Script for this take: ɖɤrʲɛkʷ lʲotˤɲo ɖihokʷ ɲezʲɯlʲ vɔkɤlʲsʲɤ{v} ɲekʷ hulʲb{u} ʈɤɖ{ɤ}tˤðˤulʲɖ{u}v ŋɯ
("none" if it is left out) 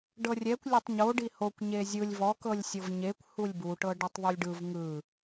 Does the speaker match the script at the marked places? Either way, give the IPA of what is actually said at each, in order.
v, u, ɯ, ɯ

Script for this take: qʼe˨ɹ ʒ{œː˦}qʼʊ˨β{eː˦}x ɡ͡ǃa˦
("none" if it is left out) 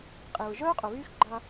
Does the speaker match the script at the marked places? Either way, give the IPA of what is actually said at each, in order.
œː˦, yː˦

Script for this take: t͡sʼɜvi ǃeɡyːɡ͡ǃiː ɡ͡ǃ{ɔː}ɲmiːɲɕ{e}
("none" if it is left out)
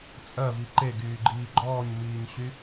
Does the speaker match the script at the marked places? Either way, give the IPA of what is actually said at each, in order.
ɔː, y

